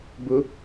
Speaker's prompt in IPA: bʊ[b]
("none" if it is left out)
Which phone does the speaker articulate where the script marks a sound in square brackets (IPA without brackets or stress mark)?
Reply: none